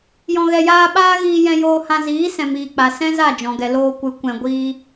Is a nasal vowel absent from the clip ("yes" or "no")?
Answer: no